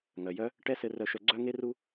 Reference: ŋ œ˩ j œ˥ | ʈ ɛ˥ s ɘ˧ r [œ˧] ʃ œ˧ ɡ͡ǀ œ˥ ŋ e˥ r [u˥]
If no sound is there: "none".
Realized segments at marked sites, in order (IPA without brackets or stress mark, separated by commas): œ˧, u˥